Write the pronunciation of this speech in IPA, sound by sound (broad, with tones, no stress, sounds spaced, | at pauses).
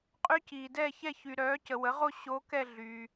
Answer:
qʼ y˦˥ c iː˨ d ɛː˥˧ ç ɛ˥˧ ç y˨ ɾ œː˨˥ c ə˨ w ə˨˥ ʁ o˥˧ ɕ o˦˥ k ɛ˥˧ ɮ y˨